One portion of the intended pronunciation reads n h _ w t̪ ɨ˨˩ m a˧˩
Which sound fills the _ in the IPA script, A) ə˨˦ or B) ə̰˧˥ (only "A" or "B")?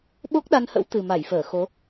B